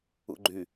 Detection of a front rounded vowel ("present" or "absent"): present